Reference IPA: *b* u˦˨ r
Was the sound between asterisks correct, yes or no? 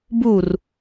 yes